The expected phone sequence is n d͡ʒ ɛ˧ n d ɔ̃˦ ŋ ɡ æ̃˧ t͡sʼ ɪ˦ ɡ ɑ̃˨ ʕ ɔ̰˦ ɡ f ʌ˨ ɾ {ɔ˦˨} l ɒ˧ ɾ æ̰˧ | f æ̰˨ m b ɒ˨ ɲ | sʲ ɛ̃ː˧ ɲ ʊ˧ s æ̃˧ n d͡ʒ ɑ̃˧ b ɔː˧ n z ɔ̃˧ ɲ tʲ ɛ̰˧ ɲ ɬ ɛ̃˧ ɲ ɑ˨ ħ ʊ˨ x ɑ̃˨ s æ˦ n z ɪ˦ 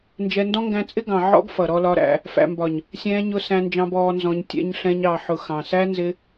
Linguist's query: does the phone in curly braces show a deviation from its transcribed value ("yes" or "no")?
yes